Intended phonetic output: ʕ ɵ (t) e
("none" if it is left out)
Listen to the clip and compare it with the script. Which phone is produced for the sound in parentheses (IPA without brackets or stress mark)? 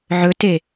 t